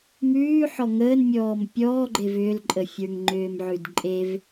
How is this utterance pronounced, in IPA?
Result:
mʉːħɔ ŋəːnmʲɔːm pʲɔːɡ͡ǃev ʏːlǃʼəfʲə˞ŋ ŋ͡ǃʏːmʕʉdǃʼev

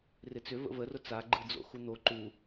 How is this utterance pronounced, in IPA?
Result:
rɪt͡sʏ və̰vərʊ t͡saɡ͡ǃɯd͡zo̰ xun̪o ǃu

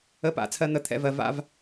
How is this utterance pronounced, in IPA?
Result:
ə˨˦pa̰˨ t͡sʰɜ˧n̪ə˧t̪ʰɛ̰˧vɜ˨ va̰˧v

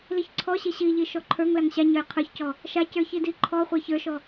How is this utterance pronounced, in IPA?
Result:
liçǀʰɔɕi ɕiʎi ʃɔǃʰə˞ŋlaŋ ɕaɲə˞j qʰə˞çcɔ | ʃacə˞ çidiǃʰɔχʷa çə˞ʃɔ

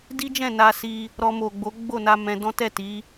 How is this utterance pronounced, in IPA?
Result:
di˦d͡ʒɛ̃˦˨ na˧si˧ | ɾɔ˧mo˨ɡ͡bo˨˦ ɡ͡bo˦˨na˧ mɛ̃˧dɔ̃˦ tɛ˦˨ti˨˦

